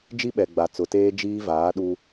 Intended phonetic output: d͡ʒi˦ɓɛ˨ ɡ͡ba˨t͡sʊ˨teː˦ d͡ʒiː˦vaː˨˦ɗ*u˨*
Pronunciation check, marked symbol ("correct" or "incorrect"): incorrect